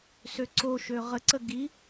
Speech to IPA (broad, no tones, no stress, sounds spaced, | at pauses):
s ø ǀ o ʃ ø ʁ ə ǀ ə ɡ i